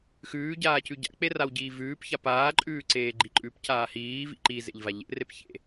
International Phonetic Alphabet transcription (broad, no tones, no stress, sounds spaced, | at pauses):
x ʉː ɟ aː c ʉ ɟ a̰ k͡p e r a w ɟ iː v ʉː p ç a p aː ǃʼ ʉː ǀ eː ɡ͡ǃ i ǃʼ ʉ p c aː h iː v ḭ ǃ i z ḛ ʎ v a ʎ ḛ r e p ç ḛ